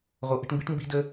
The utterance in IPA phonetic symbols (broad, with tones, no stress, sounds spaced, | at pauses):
ʁ o˨˦ ʔ ə̤˧ ʈ m b i˦ ʈ m b i̤˦ d ə˦